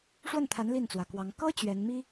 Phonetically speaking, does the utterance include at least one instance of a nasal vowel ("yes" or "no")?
no